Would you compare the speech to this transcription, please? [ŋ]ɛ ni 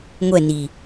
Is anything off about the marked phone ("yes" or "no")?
yes